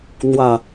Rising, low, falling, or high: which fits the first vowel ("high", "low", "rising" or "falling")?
low